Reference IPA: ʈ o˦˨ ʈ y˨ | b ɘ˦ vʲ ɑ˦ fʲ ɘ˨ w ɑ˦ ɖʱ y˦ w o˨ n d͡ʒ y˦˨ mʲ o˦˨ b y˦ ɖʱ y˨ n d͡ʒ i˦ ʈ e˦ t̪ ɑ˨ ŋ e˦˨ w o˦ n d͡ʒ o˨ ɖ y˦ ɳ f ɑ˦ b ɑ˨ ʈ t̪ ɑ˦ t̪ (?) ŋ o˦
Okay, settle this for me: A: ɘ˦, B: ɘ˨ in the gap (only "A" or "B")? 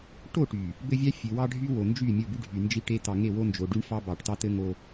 A